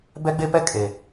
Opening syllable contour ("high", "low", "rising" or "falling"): high